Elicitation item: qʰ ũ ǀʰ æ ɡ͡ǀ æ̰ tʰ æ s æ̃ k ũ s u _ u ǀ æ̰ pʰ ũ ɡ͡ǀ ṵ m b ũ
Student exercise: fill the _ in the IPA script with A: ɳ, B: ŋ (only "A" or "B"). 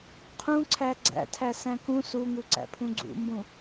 B